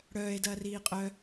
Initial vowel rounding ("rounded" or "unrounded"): rounded